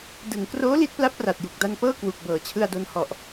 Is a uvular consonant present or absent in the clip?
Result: absent